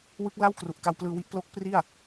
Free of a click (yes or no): yes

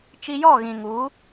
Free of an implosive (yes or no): yes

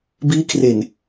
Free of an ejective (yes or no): yes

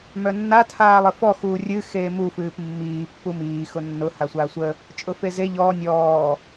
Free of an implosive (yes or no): yes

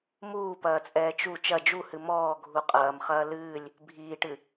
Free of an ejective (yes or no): no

